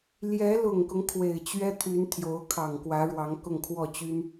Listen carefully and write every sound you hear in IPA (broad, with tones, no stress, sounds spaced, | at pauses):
l j ɛ˧˥ l ʊ˨˩ ŋ k ʊ˦ ŋ kʰ w e˨˩ ɪ̯ t͡ɕ ɥ ɛ˥ t̪ʰ y˧˥ n t̪ʰ j o˧˥ ʊ̯ kʰ ɑ˨˩ ŋ k w ä˧˥ ɻ w ɑ˧˥ ŋ k ʊ˥˧ ŋ kʰ w ɔ˥˩ t͡ɕ y˥ n